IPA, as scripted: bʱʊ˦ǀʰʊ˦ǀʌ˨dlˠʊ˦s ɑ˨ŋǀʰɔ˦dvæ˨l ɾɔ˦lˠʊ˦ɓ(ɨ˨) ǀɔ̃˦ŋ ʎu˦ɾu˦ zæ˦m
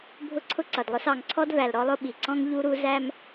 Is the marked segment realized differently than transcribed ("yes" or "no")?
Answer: yes